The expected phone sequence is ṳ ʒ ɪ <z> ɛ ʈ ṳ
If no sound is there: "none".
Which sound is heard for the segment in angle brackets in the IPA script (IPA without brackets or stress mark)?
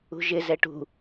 z